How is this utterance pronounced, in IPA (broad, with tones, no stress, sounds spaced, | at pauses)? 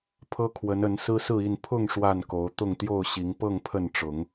pʰ ɤ˦ kʰ w ə˨˦ n ə˨˦ n s ɹ̩˦ s ɹ̩˥˨ i˥˨ n pʰ ʊ˥˨ ŋ ʂ w a˥˨ n k o˨˦ ʊ̯ t̪ ʊ˥˨ ŋ t̪ j o˥˨ ʊ̯ ɕ i˨˦ ŋ p ɤ˥˨ ŋ pʰ ə˥˨ n ʈ͡ʂ ʊ˨˦ ŋ